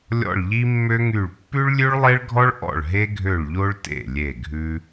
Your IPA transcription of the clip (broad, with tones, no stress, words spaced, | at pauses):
lʲɔ̰˥˩ɭʎi˥mːø˥ŋy˥˩ɭ pːʉ˥ɭlʲʉ˥ɭlˠe˥ɭɡʱɔ˥ɭ ʔɔ̰˥˩ɭɦe˥ɡʱø˥˩ɭʎo˥ɭ tḛ˥˩ lʲe˥˩ɡʱʉ˥